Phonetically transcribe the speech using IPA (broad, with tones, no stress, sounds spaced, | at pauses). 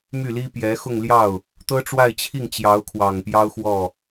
m y˥˩ l i˥ p j ɛ˧˥ x ʊ˥˧ ŋ l j ɑ˥˩ ʊ̯ | t̪ ɤ˥ ʈ͡ʂ w a˥˧ ɪ̯ t͡ɕʰ i˥˩ ŋ t͡ɕ j ɑ˧˥ ʊ̯ kʰ w ɑ˨˩ ŋ p j ɑ˥ ʊ̯ x w ɔ˥˩